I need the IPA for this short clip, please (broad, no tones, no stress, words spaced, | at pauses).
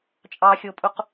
t͡ʃʼɑxʲopʼuq